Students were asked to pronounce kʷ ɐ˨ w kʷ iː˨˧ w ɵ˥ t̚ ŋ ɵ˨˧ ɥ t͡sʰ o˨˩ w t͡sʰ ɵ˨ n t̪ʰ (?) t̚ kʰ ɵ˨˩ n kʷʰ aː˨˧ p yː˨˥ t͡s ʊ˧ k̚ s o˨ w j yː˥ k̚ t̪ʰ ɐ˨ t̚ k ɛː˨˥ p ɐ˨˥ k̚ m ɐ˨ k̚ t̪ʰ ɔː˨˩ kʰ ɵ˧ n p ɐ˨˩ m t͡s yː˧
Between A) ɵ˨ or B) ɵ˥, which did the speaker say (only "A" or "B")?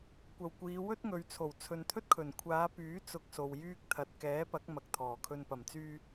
B